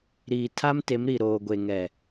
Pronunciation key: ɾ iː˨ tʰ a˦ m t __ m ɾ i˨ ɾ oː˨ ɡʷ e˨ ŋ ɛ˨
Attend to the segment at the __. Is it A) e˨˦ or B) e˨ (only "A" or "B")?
A